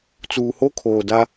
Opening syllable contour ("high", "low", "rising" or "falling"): low